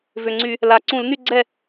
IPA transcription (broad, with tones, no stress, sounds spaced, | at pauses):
v ʏ˨˩ ŋ͡ǀ y˧˩˧ | l a˨˩ ǀ ũ˧˩˧ l n y˥˨ ɡ͡ǀ ɛ˥˨